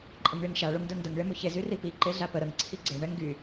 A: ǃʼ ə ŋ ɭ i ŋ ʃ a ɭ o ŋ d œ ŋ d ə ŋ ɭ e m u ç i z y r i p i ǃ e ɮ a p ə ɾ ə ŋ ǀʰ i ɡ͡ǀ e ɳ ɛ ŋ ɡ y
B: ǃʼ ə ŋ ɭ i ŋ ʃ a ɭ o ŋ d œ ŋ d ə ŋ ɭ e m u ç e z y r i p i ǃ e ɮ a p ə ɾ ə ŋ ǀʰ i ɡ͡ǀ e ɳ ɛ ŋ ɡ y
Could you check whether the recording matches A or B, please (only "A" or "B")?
B